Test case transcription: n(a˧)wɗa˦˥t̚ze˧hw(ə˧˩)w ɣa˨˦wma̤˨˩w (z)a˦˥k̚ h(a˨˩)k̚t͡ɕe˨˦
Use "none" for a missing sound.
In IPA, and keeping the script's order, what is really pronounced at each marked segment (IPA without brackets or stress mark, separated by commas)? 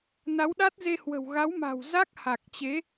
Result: a˨˦, ə̤˨˩, z, a˨˩